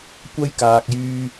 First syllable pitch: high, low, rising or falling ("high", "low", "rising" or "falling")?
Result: high